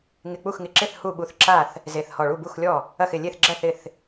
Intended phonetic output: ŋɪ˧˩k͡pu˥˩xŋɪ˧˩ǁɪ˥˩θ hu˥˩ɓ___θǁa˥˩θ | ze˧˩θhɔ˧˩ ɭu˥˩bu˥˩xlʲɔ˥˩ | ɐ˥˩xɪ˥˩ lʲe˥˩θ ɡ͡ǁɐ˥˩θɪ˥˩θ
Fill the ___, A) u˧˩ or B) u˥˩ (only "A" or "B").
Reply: A